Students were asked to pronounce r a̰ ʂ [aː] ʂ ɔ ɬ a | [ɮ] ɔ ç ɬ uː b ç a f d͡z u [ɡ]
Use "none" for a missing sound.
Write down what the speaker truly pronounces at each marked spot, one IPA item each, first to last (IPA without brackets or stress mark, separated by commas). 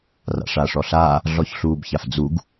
aː, ɮ, ɡ